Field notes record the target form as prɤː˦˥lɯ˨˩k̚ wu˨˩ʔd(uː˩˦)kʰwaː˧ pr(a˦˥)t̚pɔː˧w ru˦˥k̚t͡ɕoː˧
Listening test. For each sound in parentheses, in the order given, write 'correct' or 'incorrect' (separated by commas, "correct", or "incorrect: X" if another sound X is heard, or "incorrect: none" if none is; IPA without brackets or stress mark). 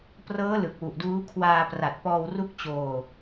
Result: incorrect: uː˦˥, incorrect: a˨˩